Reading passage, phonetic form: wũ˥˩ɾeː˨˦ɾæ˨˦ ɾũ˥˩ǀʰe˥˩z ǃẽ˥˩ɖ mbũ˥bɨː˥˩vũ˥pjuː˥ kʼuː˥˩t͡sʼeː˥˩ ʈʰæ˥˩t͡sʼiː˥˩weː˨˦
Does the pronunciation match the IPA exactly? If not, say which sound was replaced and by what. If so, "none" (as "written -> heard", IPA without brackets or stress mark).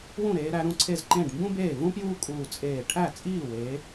ɨː˥˩ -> eː˥˩